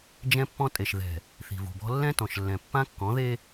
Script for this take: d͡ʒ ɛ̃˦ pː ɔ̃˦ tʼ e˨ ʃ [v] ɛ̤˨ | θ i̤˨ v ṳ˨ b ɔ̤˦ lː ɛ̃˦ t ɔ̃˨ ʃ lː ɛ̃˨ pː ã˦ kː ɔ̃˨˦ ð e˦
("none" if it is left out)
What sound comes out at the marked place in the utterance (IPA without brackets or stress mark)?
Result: ð